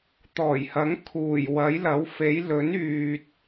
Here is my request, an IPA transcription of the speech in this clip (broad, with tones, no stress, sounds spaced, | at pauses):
t̪ ɔː˨˩ j h ɐ˨˥ ŋ kʰ uː˨˩ j w ɐ˨˥ j l ɐ˨˥ w f e˨˥ j l ɵ˨˥ n yː˨ t̚